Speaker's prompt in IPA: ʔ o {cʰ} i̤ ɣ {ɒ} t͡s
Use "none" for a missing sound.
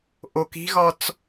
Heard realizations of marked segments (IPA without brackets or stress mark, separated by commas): k, ɒ